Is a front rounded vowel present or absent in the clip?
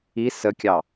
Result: absent